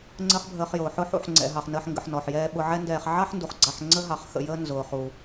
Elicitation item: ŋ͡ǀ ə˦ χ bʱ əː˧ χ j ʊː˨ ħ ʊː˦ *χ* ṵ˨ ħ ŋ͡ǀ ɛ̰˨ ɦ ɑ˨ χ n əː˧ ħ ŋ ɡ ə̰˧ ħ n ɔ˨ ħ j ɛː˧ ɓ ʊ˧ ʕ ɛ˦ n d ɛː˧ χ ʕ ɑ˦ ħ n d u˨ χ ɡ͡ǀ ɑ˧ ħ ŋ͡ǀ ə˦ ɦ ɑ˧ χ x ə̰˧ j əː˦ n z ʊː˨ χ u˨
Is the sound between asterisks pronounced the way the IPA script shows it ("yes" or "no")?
no